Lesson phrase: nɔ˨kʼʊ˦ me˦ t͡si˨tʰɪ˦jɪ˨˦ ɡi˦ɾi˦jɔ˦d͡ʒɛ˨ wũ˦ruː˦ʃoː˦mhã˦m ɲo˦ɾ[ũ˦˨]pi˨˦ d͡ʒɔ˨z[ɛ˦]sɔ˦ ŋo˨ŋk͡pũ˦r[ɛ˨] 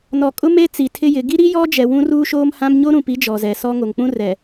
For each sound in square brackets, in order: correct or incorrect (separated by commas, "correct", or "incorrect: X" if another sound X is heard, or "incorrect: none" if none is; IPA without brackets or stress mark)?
incorrect: ũ˨, incorrect: ɛ˨, correct